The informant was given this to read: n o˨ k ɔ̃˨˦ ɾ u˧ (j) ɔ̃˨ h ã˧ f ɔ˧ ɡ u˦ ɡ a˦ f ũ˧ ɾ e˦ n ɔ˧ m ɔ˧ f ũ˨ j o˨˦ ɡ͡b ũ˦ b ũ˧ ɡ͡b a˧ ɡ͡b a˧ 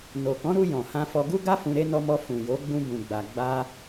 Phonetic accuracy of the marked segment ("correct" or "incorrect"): correct